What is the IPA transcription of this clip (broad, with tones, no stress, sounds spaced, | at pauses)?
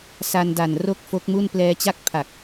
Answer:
s a˧ n d a˨˩ n r o˥˩ k̚ f o˦˥ k̚ m u˥˩ n p l ɛː˧ t͡ɕ a˥˩ k̚ pʰ a˨˩ k̚